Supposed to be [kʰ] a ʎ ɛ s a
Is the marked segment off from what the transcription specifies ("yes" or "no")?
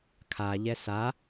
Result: no